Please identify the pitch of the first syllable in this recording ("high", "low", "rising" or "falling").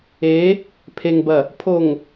rising